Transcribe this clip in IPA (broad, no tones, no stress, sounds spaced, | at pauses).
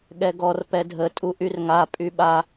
ɠ ɛ ɡ ɔ r p ɛ dʱ ə tʼ u ʔ y r ŋ a pʼ y ɓ a